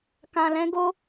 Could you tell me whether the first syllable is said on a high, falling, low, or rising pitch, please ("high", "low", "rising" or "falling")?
low